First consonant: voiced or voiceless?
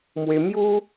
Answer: voiced